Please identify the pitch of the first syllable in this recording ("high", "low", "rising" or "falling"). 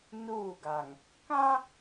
falling